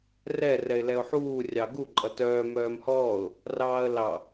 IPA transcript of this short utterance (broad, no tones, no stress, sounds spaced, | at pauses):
r ɛ r ɛ ɪ̯ l ɛ ʊ̯ ħ uː rʲ ɑ ɡ u ǃʼ ʌ t œː m œː m h ɔː ʊ̯ | r ɑː ə̯ l ɑ